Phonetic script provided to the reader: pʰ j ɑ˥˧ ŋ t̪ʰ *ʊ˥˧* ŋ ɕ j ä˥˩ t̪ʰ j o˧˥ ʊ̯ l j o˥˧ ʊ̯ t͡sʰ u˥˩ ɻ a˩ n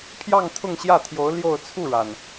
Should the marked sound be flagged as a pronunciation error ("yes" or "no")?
no